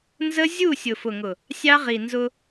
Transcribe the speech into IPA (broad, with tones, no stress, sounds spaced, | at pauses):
n z ə˦ zʲ u˦˨ sʲ ʊ˨ f ʊ˨ ŋ ʊ˨ | sʲ ɑ˦ ʁ i˨ n z ʊ˦